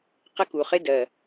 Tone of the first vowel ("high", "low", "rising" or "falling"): high